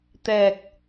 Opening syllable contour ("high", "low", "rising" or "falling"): low